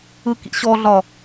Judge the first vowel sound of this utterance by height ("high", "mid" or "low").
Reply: high